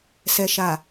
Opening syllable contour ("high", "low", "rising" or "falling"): low